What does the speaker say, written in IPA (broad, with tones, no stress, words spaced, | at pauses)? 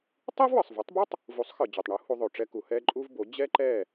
tˤi˥vwɯ˩sˤvu˩˥tˤbɯ˥tˤ | vu˩˥sˤxɯ˩ d͡ʑo˩tˤɳu˩˥ hu˧ðˤo˩ʈ͡ʂɛ˧ku˩ hɛ˥ǃʼu˥vbo˩˥ d͡ʑɛ˥ǃɛ˥˩